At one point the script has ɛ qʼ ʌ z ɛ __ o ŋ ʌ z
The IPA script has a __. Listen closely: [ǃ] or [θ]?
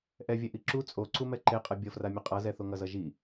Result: θ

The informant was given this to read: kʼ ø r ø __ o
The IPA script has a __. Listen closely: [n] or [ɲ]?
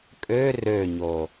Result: ɲ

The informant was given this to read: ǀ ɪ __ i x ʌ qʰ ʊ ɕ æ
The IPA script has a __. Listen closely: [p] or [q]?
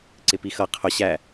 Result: p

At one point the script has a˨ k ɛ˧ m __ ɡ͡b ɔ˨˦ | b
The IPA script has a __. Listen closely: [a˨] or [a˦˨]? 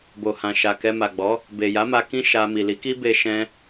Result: a˨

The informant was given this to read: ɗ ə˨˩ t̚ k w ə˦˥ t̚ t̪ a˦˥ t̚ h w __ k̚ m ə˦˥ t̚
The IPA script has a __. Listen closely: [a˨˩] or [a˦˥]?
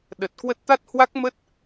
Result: a˦˥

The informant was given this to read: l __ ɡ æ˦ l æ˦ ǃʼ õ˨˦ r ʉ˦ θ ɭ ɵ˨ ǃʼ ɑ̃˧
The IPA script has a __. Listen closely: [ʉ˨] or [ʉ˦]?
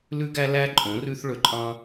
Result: ʉ˦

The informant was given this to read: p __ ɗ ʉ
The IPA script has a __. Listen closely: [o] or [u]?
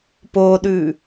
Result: o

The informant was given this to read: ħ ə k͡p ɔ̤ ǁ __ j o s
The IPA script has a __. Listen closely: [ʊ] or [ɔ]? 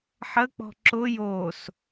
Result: ʊ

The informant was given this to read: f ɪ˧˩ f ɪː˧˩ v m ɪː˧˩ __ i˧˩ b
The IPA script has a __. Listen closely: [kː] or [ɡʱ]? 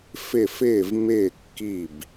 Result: kː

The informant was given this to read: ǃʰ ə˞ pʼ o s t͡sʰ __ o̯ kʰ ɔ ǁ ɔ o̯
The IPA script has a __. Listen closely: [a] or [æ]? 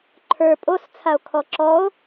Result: a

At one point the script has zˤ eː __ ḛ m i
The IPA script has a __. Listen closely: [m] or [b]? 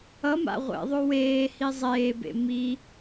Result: b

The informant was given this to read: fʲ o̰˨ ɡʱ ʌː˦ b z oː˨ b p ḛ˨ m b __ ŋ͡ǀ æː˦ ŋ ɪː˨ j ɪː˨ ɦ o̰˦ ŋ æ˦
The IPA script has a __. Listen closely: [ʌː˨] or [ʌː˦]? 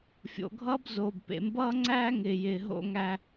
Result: ʌː˦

